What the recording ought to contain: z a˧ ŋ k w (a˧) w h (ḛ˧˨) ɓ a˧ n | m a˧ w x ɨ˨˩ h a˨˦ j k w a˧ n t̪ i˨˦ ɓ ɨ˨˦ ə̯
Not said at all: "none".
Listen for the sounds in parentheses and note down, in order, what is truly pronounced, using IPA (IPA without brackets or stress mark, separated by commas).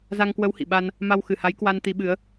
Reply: ə˧, ḭ˧˨